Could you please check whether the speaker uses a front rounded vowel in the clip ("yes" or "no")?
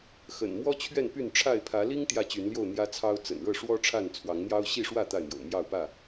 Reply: yes